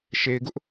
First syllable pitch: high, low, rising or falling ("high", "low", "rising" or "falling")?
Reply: low